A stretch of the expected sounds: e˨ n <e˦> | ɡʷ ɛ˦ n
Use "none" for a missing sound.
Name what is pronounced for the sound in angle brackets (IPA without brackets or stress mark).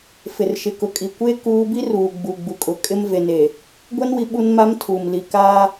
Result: e˨